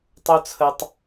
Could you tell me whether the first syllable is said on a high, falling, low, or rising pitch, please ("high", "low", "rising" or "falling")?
high